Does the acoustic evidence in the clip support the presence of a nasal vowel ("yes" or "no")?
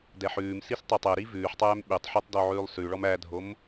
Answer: no